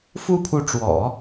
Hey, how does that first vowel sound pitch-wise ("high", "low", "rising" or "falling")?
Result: high